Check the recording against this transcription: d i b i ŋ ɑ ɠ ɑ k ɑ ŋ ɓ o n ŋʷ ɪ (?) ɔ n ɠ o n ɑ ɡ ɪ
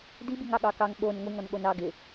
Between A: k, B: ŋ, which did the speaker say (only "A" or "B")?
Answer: B